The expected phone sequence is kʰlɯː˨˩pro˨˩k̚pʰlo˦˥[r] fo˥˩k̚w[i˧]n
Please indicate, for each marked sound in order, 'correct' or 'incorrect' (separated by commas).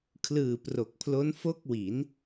incorrect, incorrect